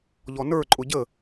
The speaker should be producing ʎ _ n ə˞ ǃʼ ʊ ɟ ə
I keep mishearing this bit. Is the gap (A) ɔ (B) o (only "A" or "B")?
A